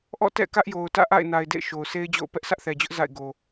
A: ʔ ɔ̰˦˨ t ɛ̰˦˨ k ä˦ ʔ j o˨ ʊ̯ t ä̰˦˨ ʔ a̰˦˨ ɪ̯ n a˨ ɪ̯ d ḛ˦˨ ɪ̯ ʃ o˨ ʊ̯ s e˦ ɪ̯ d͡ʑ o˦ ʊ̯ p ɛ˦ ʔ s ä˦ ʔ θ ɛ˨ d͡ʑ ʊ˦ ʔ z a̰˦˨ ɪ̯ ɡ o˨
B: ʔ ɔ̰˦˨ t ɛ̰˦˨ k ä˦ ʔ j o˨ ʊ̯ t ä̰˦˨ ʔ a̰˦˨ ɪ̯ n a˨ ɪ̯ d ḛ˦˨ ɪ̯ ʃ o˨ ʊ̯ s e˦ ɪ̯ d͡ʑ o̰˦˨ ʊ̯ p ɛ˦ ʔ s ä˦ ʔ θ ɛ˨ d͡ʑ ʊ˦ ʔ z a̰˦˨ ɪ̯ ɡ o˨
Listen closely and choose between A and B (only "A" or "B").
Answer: B